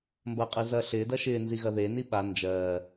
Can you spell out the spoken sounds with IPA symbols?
m b ɐ qʼ ɯ z ɐː ɬ ɪː d ɐ ʃ ɪː n z i ɣ ɐ ð e n i ɓ a n d͡ʒ ɜː

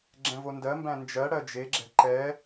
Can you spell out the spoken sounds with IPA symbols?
ɡ͡ǁ ɛ̃ v o n d ɜ m b æ̃ n d͡ʒ ɜ ɽ ɜ d͡ʒ e ɡ͡ǁ ɛ̤ ǃ ɛ

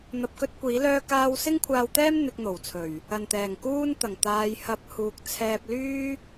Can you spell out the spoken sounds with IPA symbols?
n̪ ɐ˧ p̚ k ɵ˥ t̚ kʷ iː˨˥ l œː˥ k aː˥ w s ɪ˥ ŋ kʷʰ aː˧ w t̪ ɛː˥ m n̪ ɪ˧ k̚ n̪ o˨˩ w t͡sʰ ɵ˨˩ ɥ | ɐ˨˩ n t̪ ɛː˨˩ ŋ k uː˥ n t̪ ɐ˨˩ ŋ t̪ aː˨ j h ɐ˨˥ p̚ h uː˨ k̚ t͡sʰ ɛː˧ p̚ l yː˥

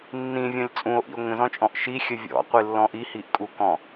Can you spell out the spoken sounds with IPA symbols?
nː ĩ vʲ ɔ̃ lʲ t͡sʼ ũ o̯ ʔ ḭ o̯ ŋ ə̃ z ɔ̃ t͡ʃʼ ɔ̃ ʔ ʃ i xʲ ə vʲ ɔ̰ qʷ i lː ɔ̃ ʔ i h i ʔ kʼ u k ɔ̃

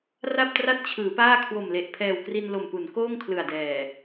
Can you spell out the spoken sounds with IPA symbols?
r a˥˩ p̚ t r a˥˩ t̚ t͡ɕʰ ɯː˩˦ p aː˥˩ kʰ w o˨˩ m l e˨˩ ʔ pʰ ɛː˨˩ w k r i˧ n l o˨˩ m p u˩˦ n k oː˥˩ ŋ kʰ l ɯ˨˩ a̯ d ɛː˨˩

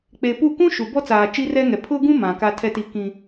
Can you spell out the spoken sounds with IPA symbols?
k͡p e˨ p u˦˨ k ũ˦ ʃ u˨ b ɔ˦ t͡s aː˨ t͡ʃ i˦ r ɛ˦ ŋ ɛ˨ pʰ ʊ˦ ɡ ũ˦ m ã˨ k a˦ tʰ ɛ˦ t i˦ k ĩ˦

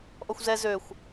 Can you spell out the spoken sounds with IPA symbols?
ʔ ɔ xʷ z ɛ z ø xʷ

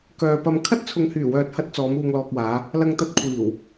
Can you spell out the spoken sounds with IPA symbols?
k œː˨ p ɐ˧ m kʰ ɐ˥ t̚ t͡sʰ ʊ˨ ŋ h yː˨˩ w œː˨ t̚ h ɐ˧ t̚ t͡s ɔː˨˧ m uː˨ ŋ l ɔː˨ k̚ w aː˨˧ | l ɐ˧ ŋ t̪ ɐ˧ t̚ kʷʰ iː˨˩ w

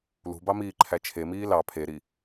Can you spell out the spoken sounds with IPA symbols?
l ṳ b ɑ m iː ǃʰ æ t͡ʃʰ e m iː l ɑ pʰ e ɾ i

